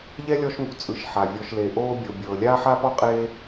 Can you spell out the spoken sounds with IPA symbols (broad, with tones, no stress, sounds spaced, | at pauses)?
ʎ ɛ˥ lʲ ɔ˦ ʃ ŋ ṳ˨ t͡sʼ ɯ˨ ʃ ħ a˩ vʲ ɔ˨ ʃ l e˨ ʔ oː˦ bʲ o˨ bʲ ɤː˨ lʲ aː˥ ħ a˥ p ɔ˥ qʼ eː˦